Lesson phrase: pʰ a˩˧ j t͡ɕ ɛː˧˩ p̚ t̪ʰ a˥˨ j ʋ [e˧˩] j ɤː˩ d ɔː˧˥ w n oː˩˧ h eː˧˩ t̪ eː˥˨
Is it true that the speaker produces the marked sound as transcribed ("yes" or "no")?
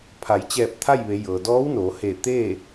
no